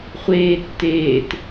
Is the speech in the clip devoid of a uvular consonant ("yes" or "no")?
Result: no